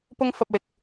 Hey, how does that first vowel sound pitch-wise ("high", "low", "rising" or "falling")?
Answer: high